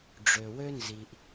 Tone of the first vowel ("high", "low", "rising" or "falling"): low